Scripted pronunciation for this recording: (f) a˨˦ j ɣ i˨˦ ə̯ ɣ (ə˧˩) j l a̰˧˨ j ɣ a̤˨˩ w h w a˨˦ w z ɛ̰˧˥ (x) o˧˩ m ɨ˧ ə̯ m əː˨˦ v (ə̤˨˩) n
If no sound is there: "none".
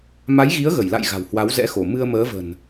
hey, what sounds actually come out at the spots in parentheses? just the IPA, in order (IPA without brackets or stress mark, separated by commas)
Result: m, ə˧˩, x, ə̤˨˩